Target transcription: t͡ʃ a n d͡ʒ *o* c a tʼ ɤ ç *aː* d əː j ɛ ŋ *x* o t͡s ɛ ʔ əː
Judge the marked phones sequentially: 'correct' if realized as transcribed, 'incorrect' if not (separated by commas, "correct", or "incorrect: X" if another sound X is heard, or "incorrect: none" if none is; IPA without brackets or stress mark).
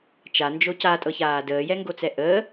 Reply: correct, correct, incorrect: ɡ